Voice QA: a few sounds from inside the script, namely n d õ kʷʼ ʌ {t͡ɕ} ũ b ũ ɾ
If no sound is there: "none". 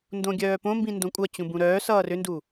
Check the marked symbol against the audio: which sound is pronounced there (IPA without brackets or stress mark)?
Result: t͡ɕ